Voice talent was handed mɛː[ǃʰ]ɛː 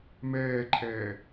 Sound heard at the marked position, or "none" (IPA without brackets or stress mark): ǃʰ